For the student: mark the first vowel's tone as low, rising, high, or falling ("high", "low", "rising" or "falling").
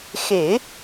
low